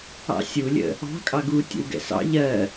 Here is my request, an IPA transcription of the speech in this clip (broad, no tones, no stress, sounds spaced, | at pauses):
ɑ̰ sʲ u lʲ ə̰ | ɑ̤ kʼ ɑ ɡ u tʲ ə̰ w ɡ ɛ̰ s ɑ̰ ʎ ɜ